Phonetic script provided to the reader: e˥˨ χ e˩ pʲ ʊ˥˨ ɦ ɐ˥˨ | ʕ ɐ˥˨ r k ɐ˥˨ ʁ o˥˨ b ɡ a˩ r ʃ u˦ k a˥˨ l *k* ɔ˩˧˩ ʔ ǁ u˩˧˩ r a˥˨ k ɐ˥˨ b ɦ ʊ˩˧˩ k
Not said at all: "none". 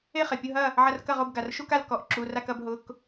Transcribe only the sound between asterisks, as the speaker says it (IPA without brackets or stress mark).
k